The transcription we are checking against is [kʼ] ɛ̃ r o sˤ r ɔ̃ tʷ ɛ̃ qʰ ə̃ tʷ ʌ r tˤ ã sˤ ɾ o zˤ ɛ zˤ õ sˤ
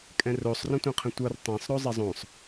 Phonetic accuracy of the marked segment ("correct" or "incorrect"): correct